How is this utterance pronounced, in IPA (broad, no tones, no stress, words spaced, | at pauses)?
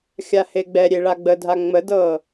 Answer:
xʲaheɡ͡bɛɾʲe ɭaɡ͡bədʱa ŋ͡mədɤ